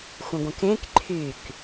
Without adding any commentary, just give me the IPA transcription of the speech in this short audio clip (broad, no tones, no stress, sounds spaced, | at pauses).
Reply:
xʷ ə̃ ɡʷ ə̃ k ẽ k ǃʰ y k